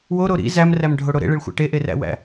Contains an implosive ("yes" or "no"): no